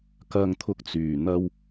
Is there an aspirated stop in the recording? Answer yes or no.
yes